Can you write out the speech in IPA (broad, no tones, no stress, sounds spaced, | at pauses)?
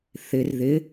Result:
θ ɪ r ð ɪ